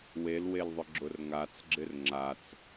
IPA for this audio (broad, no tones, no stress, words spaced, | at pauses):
welwelðˤʊ ɡ͡ǁʊrŋat͡sɡ͡ǁɪr ŋ͡ǁat͡s